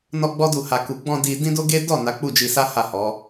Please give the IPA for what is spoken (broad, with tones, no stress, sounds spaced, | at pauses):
n ɔ˦ ɡ͡b ɔ˦ d u˦˨ h a˧ k u˨ ɡ͡b ɔ̃˧ d i˧ d ĩ˦ d o˦ ɡ e˦ d ɔ˦˨ n a˨˦ k͡p u˦˨ d͡ʒ i˧ s a˦ h a˦˨ h ɔ˨˦